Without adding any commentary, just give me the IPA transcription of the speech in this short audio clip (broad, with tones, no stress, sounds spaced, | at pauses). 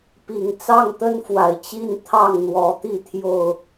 p i˨˩ ŋ t͡s ɑ˥˨ ŋ t̪ ə˦ n f w a˨˩ ɪ̯ t͡ɕ i˥˨ n t̪ʰ ɑ˥˨ ŋ n̪ w ɔ˨˦ t̪ i˥˨ t̪ʰ j o˥˨ ʊ̯